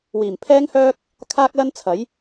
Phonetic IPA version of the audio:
w iː˨˩ m pʰ ɛː˥ ŋ h œː˥ k̚ | kʰ aː˥ k̚ l ɐ˥ n t͡sʰ ɐ˨˥ j

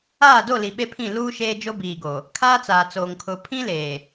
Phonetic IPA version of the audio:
aː˦˨ d o˦˨ l i˨ ɓ e˦ pʰ ĩ˦˨ l uː˦ ʃ eː˦ d͡ʒ o˦ b iː˨ ɡ o˨ | kʰ aː˦ t͡s aː˨ t͡s oː˨ ŋ kʰ ʊ˨ pʰ ĩ˦ l eː˨

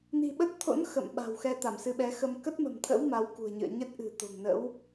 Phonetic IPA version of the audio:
n i̤˨˩ ɓ ə˦˥ t̚ t̪ʰ o̰˧˥ n x ə̰˧˨ m ɓ a̤˨˩ w x ɛ˧ t̪ a˧˩ m s ɨ˨˦ ɓ ɛ˨˦ x ə˧ m k ə˦˥ t̚ m ə̤˨˩ m t̪ʰ ə̰˧˥ w m a˨˦ w k ṳ˨˩ ə̯ ɲ ɨ̰˧˨ ə̯ ɲ ə˦˥ t̚ ʔ ɨ̤˨˩ t̪ o̤˨˩ ŋ n ə̰˧˥ w

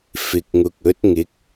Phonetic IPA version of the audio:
f ɪ˨ k̚ ŋ ʊ˨ k̚ ɵ˨˥ t̚ ŋ ɪ˨˥ k̚

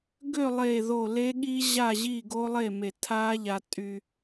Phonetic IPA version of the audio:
ɡ ø˥˨ lˠ e˧˩ ð o˧˩ l e˦˥ ɠ i˦˥ ʑ a˥˨ ʑ i˥˨ ɡ o˦˥ lˠ e˥˨ m e˧˩ tʰ a˦˥ ʎ a˧ tʼ y˧

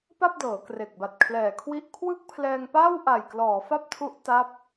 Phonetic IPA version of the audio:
p a˥˩ p̚ d ɤː˩˦ k r e˨˩ k̚ b a˨˩ t̚ kʰ l ɛː˨˩ kʰ w i˥˩ ʔ kʰ w ɯ˥˩ k̚ pʰ l ɛː˧ ŋ p aː˥˩ w ʔ a˨˩ j k l ɔː˩˦ f a˥˩ p̚ tʰ u˦˥ ʔ t a˦˥ p̚

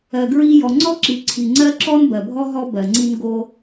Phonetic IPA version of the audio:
ɜ˨ ɡ ɹ i˦ j ɔ˨ ŋ͡ǀ ɔ˦ ǁ i˨ ǀʰ i˨ ŋ͡ǀ ɜ˦ ǁ ɔ˦ n b ɜ˨ bʱ ɔ˦ ɦ ɔ˦ b ɜ˨ ŋ͡ǀ i˦ n ɡ o˦

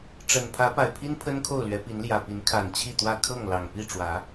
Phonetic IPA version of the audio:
ʈ͡ʂ ə˨˩ n pʰ ä˨˦ p a˨˩ ɪ̯ pʰ i˦ n pʰ ə˦ n kʰ o˥˨ ʊ̯ l ɥ ɛ˨˦ p i˨˦ n l j ä˨˩ p i˨˦ n kʰ a˨˩ n t͡ɕʰ i˥˨ t̪ w ä˥˨ kʰ ɤ˥˨ ŋ l ɑ˨˩ ŋ p i˥˨ ʈ͡ʂ w ä˨˦

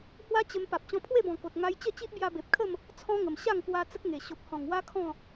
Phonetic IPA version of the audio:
h w a˦ t͡ɕ ə˧ m p a˨ p̚ t͡ɕ ɔ̃˧ pʰ w e˥˧ b ɔ̃˨˩ k o˨ t̚ ŋ a˦ j t͡ɕ ə˥˧ t͡ɕ i˦ ʔ b j a˧ b e˨ p̚ kʰ ə˥˧ m | t͡sʰ ɔ̃˦ ŋ ə˨˩ m ɕ a˥˧ ŋ k w a˧ t͡s ə˦ k̚ ŋ e˨˩ ɕ o˨ p̚ h ɔ̃˨˩ ŋ w a˦ kʰ ɔ̃˥˧

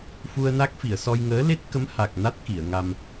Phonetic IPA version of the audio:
f u˧ ə̯ n a˦˥ k̚ f i˨˩˨ ə̯ s ɔ˧ j ŋ əː˧˥ l e˦˥ t̚ k ə˧˥ m h a˨˩ k̚ n a˦˥ t̚ k i˨˩˨ ə̯ ŋ a˧ m

